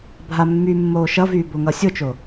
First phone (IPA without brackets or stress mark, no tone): bʱ